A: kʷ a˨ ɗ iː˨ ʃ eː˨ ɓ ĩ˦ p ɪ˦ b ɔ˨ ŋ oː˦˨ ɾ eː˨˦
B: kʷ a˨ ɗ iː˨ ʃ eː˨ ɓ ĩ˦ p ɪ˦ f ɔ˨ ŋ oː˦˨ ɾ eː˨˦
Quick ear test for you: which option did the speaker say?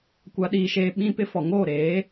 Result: B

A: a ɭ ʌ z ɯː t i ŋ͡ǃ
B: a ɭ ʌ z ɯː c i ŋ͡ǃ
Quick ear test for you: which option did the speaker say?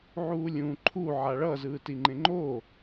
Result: A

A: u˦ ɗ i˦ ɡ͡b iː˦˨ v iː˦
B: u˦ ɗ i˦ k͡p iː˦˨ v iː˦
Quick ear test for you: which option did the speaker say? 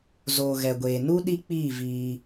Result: B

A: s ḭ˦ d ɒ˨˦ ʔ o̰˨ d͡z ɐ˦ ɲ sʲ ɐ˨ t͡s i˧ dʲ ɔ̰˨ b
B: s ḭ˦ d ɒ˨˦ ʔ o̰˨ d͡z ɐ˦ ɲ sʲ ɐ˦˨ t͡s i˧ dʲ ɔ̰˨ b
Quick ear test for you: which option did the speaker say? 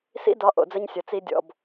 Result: A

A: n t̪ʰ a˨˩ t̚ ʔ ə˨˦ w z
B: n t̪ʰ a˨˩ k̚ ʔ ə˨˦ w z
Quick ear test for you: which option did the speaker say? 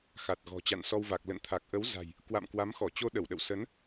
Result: B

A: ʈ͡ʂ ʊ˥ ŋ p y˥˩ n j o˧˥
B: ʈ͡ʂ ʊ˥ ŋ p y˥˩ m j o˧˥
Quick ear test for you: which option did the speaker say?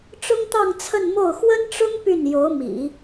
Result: A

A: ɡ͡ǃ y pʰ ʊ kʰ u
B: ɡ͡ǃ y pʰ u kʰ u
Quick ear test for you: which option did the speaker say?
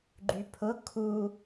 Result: A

